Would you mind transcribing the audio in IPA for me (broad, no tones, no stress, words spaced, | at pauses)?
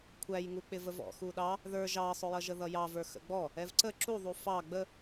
kʷʰæjŋuk͡pɪvəv ɔ̰xu ɗɑ | ðə˞ ʒɑsˤʊjʌʒə ðʌjɑvə˞ xə̰ɡ͡bɔ | ɛvǀə ǁuðˤu fɑ ɡ͡bə